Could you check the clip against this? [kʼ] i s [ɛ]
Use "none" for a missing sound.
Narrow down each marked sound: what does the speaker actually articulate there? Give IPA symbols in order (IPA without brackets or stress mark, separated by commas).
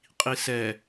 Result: qʼ, ɛ